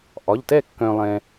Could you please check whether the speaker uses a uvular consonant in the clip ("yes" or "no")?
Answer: no